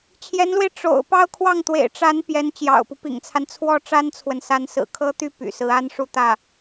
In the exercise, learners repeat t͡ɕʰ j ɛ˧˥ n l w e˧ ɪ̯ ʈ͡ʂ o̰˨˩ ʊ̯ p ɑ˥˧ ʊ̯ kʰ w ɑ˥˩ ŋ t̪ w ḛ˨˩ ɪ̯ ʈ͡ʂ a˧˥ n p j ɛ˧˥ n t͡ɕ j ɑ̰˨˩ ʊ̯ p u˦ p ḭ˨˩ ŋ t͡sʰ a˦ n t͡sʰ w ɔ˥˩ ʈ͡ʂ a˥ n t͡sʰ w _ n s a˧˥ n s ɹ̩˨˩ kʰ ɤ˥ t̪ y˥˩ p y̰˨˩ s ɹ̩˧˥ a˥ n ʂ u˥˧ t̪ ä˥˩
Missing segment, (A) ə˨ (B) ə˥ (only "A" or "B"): A